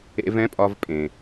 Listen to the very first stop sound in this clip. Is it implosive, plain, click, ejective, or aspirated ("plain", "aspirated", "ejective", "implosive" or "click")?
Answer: ejective